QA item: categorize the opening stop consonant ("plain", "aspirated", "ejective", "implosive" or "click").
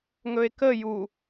plain